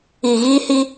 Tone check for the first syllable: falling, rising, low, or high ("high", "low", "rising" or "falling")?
low